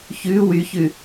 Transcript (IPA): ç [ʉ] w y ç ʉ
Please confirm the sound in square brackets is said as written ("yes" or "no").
yes